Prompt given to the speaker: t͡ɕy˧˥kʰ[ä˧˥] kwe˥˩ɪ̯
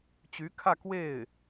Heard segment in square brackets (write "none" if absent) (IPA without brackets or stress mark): ä˥˧